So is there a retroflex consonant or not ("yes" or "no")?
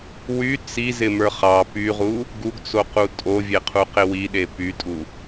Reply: no